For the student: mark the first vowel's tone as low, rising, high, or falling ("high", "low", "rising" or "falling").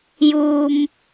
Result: low